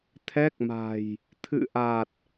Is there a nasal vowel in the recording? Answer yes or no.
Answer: no